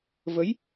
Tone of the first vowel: rising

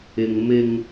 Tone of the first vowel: low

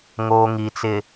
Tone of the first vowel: low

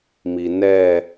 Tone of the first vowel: low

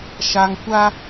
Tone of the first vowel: low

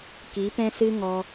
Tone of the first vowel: rising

